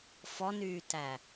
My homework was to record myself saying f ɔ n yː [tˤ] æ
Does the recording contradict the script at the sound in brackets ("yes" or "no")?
yes